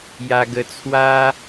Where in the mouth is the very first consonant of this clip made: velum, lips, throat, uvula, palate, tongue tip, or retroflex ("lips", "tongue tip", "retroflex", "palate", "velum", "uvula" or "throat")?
palate